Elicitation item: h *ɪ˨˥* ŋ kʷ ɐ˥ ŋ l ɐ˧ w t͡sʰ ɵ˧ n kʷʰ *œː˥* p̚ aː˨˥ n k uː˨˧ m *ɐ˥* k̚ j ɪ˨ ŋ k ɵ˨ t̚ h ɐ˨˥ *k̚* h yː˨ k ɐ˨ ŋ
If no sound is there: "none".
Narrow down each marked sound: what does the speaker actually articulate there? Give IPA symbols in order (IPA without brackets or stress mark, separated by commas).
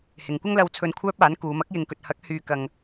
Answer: ɪ˨, œː˥, ɐ˥, k̚